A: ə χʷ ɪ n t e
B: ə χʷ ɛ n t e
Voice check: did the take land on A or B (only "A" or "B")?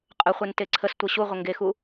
B